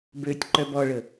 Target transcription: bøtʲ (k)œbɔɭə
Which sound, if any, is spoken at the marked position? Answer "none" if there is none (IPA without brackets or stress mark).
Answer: ǃ